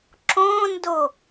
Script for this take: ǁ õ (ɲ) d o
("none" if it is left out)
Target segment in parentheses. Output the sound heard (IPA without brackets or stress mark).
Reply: n